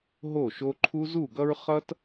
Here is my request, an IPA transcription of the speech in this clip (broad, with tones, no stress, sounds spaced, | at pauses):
ɦ o˦˨ ʃ o˦ ǃʰ u˦ z u˦˨ ɡ ʌ˦ ɹ χ ʌ˦ t